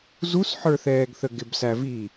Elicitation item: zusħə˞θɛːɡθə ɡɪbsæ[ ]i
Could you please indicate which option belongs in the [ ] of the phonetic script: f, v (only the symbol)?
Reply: v